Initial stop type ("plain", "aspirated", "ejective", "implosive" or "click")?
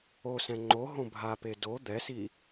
click